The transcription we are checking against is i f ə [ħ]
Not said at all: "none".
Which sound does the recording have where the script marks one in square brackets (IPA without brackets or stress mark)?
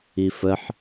ħ